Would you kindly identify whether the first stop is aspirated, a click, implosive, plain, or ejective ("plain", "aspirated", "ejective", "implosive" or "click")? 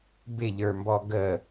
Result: plain